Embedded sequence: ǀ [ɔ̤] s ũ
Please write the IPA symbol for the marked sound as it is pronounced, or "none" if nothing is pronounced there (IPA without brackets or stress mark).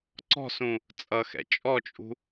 ɔ̤